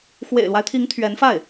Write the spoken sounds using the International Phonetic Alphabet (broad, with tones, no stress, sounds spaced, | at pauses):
x w ḛ˨˩ ɪ̯ l w a˦ ɪ̯ t̪ʰ i˧˥ ŋ t̪ʰ ɥ ɛ˧˥ n f a˥˩ ɪ̯